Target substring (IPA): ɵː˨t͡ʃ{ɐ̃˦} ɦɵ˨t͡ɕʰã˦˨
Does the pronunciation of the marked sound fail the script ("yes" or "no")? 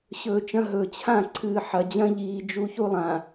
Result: no